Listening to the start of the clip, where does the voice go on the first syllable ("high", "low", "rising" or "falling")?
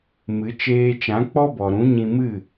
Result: rising